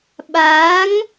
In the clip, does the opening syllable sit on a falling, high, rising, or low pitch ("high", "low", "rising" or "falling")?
rising